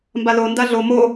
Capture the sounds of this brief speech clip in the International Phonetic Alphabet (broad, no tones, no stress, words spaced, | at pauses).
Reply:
mbalo ndaɮo mo